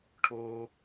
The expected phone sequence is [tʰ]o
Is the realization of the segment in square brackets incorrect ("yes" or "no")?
yes